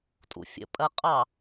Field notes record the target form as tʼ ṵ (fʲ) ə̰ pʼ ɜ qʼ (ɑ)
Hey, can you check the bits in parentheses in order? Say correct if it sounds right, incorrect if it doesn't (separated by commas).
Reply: correct, correct